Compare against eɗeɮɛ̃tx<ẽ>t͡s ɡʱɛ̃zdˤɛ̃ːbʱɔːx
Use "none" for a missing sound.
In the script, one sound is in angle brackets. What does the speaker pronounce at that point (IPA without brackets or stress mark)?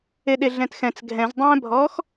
ɛ̃